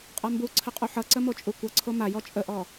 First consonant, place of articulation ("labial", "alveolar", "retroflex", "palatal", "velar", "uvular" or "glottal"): uvular